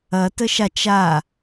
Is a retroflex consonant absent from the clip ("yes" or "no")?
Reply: yes